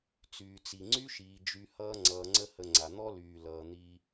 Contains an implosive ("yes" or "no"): no